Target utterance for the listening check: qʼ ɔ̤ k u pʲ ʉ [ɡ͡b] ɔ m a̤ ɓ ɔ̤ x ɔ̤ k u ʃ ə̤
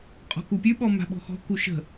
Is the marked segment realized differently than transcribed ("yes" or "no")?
yes